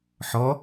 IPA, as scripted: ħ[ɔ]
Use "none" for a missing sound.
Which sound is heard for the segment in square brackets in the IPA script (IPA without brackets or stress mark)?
ɔ